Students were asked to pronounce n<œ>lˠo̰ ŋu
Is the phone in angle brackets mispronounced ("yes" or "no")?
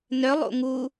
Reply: no